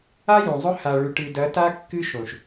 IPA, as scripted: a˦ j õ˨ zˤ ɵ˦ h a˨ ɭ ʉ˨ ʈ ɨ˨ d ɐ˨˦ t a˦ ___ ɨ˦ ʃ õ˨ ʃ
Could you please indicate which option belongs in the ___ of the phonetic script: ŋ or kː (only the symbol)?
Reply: kː